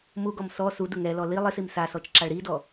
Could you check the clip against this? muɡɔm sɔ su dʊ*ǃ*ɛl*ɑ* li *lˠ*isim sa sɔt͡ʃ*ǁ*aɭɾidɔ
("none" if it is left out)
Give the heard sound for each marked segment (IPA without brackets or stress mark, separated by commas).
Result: ŋ, ɔ, lˠ, ǁ